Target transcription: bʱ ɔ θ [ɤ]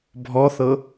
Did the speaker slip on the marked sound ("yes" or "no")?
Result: no